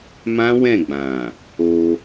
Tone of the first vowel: high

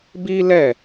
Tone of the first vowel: high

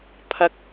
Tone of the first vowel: high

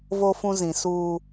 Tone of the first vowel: high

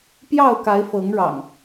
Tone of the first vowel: falling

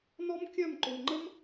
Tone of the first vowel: high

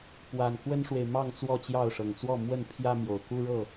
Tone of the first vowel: low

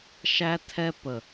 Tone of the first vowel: high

